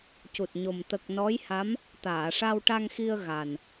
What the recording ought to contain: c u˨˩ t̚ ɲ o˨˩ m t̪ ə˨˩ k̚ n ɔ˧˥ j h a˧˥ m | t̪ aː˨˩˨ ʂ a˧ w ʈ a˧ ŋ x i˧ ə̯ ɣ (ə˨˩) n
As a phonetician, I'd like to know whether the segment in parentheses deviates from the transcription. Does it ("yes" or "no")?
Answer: yes